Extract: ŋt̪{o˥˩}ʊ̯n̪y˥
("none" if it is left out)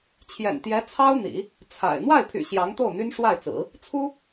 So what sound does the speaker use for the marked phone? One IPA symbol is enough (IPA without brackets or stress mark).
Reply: o˥˩